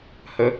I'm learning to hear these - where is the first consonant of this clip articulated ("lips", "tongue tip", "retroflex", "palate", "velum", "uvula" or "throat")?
throat